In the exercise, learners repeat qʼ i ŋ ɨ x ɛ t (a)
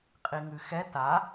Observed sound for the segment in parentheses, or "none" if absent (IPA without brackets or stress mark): a